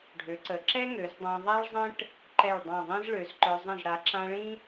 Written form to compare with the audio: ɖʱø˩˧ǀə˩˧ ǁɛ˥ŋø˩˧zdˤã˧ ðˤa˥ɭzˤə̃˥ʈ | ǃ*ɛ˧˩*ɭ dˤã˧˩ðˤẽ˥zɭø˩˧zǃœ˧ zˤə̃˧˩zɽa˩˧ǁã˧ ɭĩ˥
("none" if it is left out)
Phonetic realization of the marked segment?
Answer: ɛ˧˩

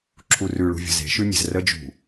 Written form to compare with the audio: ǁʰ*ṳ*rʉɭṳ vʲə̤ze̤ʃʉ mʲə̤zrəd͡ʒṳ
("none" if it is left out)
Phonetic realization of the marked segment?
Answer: u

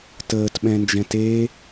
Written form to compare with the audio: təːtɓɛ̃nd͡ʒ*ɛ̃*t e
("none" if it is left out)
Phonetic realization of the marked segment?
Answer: ɛ̃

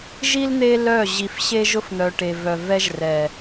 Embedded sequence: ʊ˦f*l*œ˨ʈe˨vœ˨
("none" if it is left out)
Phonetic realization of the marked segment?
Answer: n̪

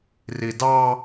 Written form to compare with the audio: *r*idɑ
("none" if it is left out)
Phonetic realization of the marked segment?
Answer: r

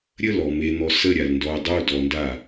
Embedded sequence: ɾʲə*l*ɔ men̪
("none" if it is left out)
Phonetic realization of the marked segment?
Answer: l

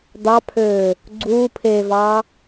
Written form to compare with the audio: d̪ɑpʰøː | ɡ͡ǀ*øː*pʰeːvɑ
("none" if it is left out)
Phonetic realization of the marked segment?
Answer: uː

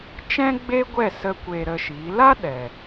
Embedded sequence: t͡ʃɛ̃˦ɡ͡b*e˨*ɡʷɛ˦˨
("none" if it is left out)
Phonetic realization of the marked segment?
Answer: e˦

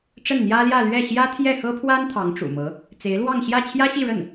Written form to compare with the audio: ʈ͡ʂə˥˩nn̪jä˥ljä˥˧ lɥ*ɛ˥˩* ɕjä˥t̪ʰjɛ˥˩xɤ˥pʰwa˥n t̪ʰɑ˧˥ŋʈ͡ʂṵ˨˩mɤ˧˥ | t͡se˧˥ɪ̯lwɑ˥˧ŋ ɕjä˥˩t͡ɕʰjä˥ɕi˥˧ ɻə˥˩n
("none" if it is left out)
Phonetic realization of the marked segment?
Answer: ɛ˥˩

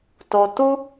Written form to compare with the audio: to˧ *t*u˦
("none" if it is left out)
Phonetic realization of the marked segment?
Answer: t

